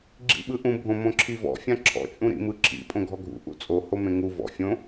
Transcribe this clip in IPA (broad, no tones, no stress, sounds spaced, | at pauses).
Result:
ɡ͡ǁ ḭ ɓ ɯ ʔ ũ bʱ õ m õ ǁʰ i v ɔ̰ fʲ ã ǁʰ ɔ̰ t͡ʃʼ ũ ɾ ḭ m ɯ ǁʰ ḭ pʼ õ ɡʱ ɔ ɡʱ ṵ ʔ ṵ t͡sʼ o h o m ẽ ŋ u v ɔ̰ fʲ õ